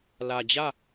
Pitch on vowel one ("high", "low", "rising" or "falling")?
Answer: low